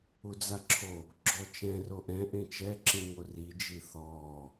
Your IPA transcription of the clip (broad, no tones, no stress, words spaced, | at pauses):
ud͡zaǁʰo | ɡ͡ǁɔt͡ʃɛ̃ roʔɛ̃ ʔẽt͡ʃɛ ǁĩŋori d͡ʒiθɔː